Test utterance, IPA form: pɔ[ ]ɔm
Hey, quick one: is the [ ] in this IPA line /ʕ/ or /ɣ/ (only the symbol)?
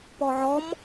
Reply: ʕ